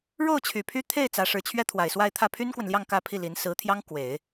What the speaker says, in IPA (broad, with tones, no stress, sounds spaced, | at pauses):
ɻ o˥˩ ʊ̯ t͡ɕʰ y˨˩ pʰ y˥ t̪ʰ e˥˩ ɪ̯ t͡s ä˧˥ ʂ ɻ̩˧˥ t͡ɕʰ ɥ ɛ˥ t̪ʰ w a˨˩ ɪ̯ s w a˥˧ ɪ̯ t̪ʰ ä˥˩ pʰ y˥ n k w ə˨ n l j ɑ˥˧ ŋ k ä˥˧ pʰ i˥˩ l i˧˥ n s ɹ̩˧˥ t̪ʰ j ɑ˥ ŋ k w e˨˩˦ ɪ̯